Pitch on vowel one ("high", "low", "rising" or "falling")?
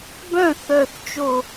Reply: falling